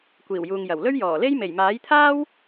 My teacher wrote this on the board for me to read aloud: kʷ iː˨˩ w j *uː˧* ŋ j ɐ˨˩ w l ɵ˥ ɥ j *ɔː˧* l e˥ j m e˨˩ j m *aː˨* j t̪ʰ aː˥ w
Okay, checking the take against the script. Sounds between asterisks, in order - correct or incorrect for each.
incorrect: uː˨, incorrect: ɔː˨˩, incorrect: aː˨˥

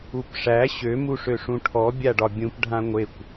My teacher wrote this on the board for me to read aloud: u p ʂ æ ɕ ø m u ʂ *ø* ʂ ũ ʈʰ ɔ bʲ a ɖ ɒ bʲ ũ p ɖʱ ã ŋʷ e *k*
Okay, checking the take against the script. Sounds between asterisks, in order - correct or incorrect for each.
correct, incorrect: kʷ

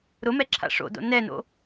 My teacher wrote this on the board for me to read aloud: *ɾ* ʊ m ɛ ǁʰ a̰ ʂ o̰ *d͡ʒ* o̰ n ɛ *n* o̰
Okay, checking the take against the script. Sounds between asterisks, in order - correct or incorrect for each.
correct, incorrect: d, correct

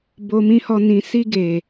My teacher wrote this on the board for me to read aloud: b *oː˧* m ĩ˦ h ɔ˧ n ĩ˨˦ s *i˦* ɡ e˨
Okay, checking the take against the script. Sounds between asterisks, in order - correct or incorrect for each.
incorrect: o˧, correct

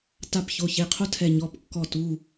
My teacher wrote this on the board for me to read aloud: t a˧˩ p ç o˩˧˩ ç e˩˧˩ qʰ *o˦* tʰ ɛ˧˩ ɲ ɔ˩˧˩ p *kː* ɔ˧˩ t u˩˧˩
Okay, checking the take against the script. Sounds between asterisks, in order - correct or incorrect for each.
correct, correct

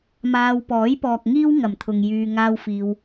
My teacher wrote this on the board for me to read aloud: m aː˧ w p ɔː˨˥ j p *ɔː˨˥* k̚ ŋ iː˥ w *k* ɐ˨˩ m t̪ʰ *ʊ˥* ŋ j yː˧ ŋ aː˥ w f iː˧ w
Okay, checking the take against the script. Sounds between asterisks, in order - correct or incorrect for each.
incorrect: ɔː˨, incorrect: ŋ, incorrect: ʊ˨

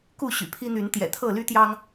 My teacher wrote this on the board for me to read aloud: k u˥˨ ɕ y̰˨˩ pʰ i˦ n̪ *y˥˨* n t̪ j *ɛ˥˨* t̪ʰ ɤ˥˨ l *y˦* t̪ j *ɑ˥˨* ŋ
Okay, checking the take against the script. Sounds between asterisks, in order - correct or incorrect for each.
incorrect: y˨˦, incorrect: ɛ̰˨˩, correct, incorrect: ɑ˦

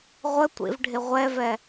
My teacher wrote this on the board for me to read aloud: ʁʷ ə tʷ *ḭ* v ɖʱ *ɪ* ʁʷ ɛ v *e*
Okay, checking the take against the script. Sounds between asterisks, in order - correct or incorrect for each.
correct, correct, incorrect: ɛ

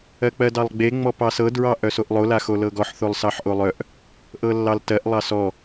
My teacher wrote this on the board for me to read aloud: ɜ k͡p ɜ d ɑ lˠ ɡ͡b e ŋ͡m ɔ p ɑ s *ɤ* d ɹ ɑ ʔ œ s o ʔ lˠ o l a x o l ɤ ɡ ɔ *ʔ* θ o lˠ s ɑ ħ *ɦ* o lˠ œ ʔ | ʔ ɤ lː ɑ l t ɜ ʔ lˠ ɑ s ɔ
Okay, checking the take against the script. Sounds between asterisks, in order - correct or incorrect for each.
correct, incorrect: ħ, incorrect: ʔ

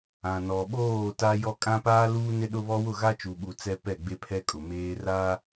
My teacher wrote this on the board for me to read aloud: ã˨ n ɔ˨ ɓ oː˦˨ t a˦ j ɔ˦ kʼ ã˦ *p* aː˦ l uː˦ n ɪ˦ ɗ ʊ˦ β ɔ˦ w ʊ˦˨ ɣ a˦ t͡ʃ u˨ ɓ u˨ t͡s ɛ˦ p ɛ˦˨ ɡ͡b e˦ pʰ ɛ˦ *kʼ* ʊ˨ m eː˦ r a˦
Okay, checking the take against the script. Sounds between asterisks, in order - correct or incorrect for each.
correct, correct

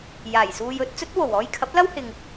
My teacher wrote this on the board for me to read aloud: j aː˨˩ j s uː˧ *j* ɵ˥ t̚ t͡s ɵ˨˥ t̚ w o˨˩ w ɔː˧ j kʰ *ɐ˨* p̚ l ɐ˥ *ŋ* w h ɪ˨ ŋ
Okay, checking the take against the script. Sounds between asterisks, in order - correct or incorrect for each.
correct, incorrect: ɐ˨˥, incorrect: none

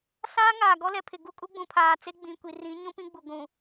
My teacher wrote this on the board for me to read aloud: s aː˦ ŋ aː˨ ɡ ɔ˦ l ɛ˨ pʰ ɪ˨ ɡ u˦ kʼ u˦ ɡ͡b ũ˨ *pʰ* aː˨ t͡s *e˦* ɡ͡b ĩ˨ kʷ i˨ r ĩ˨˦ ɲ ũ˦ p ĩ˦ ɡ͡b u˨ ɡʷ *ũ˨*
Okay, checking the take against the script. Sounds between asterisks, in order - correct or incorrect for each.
correct, correct, correct

